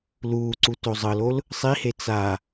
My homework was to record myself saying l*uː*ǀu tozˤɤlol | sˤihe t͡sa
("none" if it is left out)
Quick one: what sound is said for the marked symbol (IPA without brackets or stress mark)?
uː